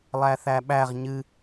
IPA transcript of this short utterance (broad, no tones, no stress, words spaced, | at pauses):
lˠæθæɓæʁ ɲɨ